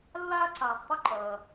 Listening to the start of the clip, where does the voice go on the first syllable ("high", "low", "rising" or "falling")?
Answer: high